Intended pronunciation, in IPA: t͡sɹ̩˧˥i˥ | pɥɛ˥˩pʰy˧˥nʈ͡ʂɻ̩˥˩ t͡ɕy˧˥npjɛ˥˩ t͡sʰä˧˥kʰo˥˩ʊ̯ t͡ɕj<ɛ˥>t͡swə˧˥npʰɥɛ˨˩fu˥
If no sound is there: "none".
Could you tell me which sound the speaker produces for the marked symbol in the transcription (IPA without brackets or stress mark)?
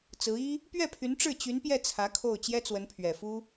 ɛ˥